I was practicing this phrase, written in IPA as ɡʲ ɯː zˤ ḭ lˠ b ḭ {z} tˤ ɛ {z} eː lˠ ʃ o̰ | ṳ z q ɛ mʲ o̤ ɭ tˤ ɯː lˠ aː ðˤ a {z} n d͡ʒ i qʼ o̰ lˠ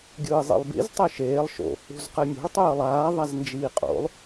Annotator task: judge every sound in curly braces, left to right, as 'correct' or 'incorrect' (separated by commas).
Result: correct, incorrect, correct